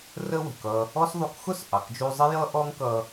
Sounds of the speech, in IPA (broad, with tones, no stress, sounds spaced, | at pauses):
r ə˥ w ə̤˩ k ʌ˧ | ɔ˥ s ðˤ u˧ k x ʊ˥ s ʔ ɑ˩ k d͡ʒ u˧ zˤ ɪ˥ j ʌ˥ ʔ ɔ˥ ŋ k ʌ˧